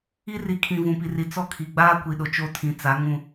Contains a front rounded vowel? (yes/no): no